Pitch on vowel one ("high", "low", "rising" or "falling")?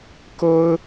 high